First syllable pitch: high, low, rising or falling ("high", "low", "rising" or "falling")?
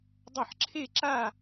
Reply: falling